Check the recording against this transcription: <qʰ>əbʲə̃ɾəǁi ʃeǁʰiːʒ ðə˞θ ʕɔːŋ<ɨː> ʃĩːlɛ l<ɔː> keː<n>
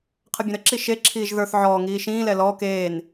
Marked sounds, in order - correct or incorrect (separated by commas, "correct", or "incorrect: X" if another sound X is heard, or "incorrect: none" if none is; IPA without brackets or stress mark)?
correct, incorrect: iː, correct, correct